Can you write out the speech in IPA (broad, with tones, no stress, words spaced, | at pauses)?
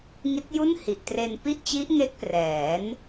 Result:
ŋi˦˥t̚ju˥˩n hi˨˩ʔtre˧n pi˥˩ʔt͡ɕi˦˥ʔ ŋe˦˥k̚prɛː˩˦n